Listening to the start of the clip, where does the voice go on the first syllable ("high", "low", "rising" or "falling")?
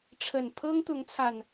low